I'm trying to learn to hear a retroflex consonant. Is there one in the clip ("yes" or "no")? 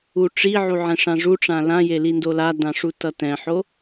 yes